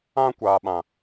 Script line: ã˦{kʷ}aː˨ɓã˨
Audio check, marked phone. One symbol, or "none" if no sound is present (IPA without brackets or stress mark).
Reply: kʷ